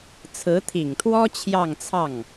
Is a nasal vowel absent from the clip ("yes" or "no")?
yes